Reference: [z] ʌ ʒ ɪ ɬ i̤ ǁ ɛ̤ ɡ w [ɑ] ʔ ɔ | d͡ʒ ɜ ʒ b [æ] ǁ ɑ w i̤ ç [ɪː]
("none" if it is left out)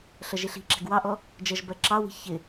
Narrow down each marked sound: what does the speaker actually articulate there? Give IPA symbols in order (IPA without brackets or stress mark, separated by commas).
ɬ, ɑ, ɜ, ɪ